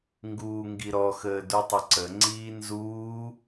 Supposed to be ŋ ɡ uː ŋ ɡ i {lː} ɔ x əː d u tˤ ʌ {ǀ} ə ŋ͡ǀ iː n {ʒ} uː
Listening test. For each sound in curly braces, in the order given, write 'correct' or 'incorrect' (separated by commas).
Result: incorrect, correct, incorrect